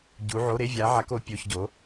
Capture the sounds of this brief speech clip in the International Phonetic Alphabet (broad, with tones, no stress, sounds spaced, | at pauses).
ɟ u˧˥ ʕ o˧˥˧ ɾ e˧˥˧ vʲ a˧˥ ʕ a˧˥ k o˧˥ pʲ o˧˥˧ ç ɟ o˧˥